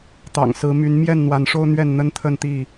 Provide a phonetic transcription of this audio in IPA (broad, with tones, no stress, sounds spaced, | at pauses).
t̪ ɑ̰˨˩ ŋ s ɹ̩˨˦ m y˨˦ n m j ɛ˥˨ n n̪ w a˨˦ n ʂ o˦ ʊ̯ n̪ ɥ ɛ˥˨ n n̪ ə˦ n t̪ʰ ə˥˨ n t̪ i˥˨